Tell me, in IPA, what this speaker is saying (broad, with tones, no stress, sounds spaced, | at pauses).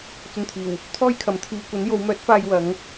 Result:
t͡s ɵ˧ n t̪ʰ iː˨˩ w | t̪ʰ ɔː˥ j kʰ ɐ˨˧ m t̪ʰ iː˧ kʷ ɐ˨˥ n j o˨˧ w m œː˨˥ t̚ f aː˧ j w ɐ˨˧ ŋ